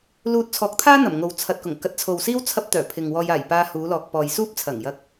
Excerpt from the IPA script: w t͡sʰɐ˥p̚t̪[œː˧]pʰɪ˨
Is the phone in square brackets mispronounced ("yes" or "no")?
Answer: yes